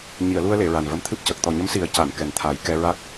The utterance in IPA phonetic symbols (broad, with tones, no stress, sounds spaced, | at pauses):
ɲ i˨˩˨ ə̯ l u˧ ə̯ l e˨˩˨ ɹ a˨˩ n v ə˧˥ m t̪ʰ ɨ˦˥ p̚ c ə˨˩ k̚ t̪ ɔ˨˩ ɲ ə˧˥ m s i˨˩˦ ə̯ c a˨˩˨ n k ɛ˨˩ n t̪ʰ a˨˩˦ j k ɛ˧ ɹ a˦˥ k̚